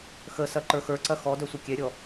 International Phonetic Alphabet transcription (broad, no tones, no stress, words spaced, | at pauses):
xəsɐ ǃə˞xə˞ǀɐ xɔdœ sʷɐkʲɛɾʲɔ